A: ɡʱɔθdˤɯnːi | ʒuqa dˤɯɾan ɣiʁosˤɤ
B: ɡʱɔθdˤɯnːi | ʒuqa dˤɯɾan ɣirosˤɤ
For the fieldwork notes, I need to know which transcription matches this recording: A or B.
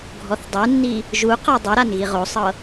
A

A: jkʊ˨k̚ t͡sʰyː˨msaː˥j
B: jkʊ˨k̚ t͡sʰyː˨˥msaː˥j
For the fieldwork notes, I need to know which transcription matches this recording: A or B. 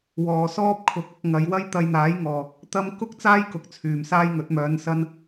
A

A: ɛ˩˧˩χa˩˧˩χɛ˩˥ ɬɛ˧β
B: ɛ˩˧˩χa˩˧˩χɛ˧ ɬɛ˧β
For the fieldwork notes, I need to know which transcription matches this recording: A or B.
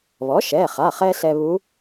B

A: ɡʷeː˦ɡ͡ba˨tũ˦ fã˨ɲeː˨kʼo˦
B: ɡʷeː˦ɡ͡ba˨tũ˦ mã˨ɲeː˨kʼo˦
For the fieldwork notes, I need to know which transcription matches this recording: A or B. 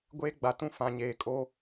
A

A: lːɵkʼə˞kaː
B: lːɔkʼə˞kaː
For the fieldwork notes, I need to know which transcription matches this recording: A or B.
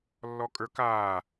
B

